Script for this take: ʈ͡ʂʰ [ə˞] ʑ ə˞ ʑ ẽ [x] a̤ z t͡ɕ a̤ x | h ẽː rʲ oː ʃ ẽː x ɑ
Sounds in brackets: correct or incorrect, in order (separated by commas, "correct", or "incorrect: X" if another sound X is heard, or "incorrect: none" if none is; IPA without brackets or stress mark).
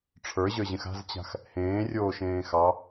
correct, correct